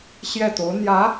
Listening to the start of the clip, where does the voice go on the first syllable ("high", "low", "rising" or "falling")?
falling